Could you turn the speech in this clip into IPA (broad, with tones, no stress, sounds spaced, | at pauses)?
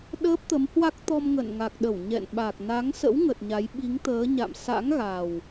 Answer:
ɗ əː˦˥ p̚ t̪ ə˨˦ m h w a˦˥ k̚ t̪ ɔ˧ m ŋ ə̰˧˨ n ŋ a˨˩ k̚ ɗ ə˧˩ w ɲ ɛ̰˧˨ n ɓ a˨˩ k̚ n a˨˦ ŋ s ə̰˧˥ w ŋ ə˨˩ t̚ ɲ a˨˦ j ɓ i˨˦ ŋ t̪ əː˨˦ ɲ a̰˧˨ m s a̰˧˥ ŋ ɣ a˨˩ w